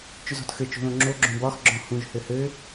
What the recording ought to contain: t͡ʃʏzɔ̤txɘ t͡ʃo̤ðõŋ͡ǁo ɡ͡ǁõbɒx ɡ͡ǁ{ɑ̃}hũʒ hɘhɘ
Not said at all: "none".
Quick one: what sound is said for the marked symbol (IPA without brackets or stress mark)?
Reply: ɔ̃